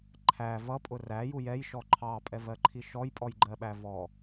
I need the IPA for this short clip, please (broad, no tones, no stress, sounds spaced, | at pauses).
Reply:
ǃʰ æ v ʌ pʼ ʊ r æ j u j ɛ j ʃ ɔ ǃʰ ɑ pʼ ɛ v ɜ ǃʰ i ʃ ɔ j pʼ ɔ j ɡ͡ǃ ɜ ɓ æ v ɔ